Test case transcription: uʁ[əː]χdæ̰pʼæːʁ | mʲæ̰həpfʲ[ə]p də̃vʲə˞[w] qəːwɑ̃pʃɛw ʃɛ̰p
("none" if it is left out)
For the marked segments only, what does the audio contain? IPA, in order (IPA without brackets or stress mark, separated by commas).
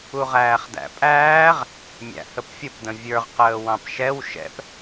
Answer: æː, ə, ʁ